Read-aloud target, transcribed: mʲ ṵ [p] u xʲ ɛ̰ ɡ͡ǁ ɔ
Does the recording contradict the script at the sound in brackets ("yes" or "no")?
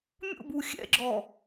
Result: yes